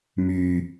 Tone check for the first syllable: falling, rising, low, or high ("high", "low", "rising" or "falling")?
low